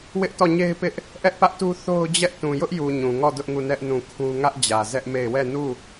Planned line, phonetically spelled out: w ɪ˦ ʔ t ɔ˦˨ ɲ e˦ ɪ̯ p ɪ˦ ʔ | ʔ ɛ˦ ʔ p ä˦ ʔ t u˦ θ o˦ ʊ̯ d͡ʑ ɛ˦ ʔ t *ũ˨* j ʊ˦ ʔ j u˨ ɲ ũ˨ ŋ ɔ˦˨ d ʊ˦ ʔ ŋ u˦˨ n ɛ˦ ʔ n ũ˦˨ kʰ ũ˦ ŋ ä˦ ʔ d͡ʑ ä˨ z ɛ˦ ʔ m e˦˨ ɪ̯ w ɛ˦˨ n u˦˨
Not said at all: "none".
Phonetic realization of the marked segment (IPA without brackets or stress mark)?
ũ˨